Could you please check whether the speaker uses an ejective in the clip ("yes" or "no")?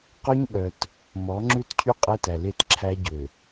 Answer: yes